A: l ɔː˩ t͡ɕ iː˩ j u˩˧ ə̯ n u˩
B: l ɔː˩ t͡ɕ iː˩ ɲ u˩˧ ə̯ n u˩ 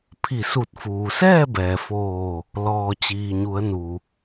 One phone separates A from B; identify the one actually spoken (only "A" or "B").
B